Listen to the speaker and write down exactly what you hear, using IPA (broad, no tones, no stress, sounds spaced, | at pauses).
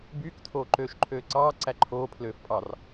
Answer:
b yː k tʰ oː ǃ øː ʃ ǃʰ øː ǀ ɑː ǀ æ ǃʰ oː pʰ l øː f pʼ ɑ r